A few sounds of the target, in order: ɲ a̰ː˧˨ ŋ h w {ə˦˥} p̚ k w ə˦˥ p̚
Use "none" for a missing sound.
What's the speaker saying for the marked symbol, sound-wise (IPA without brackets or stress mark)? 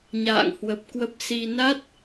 ə˨˩